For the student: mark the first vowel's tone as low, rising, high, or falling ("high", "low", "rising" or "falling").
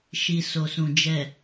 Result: low